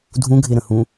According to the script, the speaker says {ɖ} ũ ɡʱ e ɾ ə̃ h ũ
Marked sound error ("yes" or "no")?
yes